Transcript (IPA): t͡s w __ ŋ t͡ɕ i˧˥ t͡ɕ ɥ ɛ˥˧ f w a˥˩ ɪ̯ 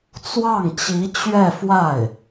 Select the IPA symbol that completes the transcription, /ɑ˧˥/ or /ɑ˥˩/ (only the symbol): ɑ˥˩